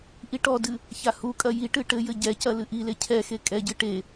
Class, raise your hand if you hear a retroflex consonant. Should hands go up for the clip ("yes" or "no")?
yes